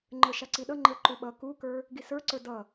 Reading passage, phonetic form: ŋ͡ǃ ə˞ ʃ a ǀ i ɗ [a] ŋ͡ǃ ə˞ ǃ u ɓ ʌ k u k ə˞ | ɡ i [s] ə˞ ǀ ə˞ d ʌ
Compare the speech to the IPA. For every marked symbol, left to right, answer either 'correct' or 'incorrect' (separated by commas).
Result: incorrect, correct